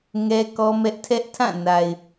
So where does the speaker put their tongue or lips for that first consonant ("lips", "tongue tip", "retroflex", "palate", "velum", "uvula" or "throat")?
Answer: velum